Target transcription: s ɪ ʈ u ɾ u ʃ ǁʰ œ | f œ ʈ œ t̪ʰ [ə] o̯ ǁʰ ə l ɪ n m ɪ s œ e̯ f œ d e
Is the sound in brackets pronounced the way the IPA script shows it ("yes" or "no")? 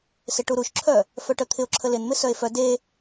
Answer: no